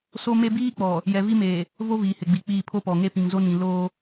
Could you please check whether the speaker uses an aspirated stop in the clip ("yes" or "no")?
yes